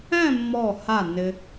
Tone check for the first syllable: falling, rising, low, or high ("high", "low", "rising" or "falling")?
falling